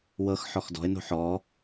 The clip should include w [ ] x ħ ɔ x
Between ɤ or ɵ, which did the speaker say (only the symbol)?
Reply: ɤ